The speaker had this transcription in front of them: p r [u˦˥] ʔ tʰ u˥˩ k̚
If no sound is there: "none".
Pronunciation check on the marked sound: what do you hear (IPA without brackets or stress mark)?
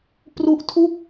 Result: u˦˥